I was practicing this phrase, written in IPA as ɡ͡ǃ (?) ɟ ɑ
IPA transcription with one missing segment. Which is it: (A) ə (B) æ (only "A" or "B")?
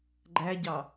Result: B